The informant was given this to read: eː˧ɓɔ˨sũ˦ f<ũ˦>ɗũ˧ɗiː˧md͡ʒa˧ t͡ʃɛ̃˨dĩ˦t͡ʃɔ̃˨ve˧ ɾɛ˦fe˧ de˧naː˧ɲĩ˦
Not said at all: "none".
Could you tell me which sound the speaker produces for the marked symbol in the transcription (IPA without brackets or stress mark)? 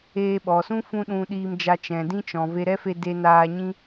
ũ˦